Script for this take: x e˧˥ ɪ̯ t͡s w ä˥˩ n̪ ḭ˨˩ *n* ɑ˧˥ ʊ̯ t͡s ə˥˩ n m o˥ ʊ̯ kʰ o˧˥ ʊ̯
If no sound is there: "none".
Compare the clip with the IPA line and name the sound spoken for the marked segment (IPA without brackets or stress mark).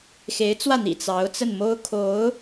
t͡s